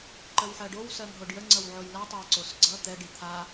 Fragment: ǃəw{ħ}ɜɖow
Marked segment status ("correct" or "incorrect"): correct